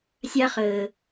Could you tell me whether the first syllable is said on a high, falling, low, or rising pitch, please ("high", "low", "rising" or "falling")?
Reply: high